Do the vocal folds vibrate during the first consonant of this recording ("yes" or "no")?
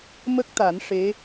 yes